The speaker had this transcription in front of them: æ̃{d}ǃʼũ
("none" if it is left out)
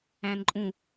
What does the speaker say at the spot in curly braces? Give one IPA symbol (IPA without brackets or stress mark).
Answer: n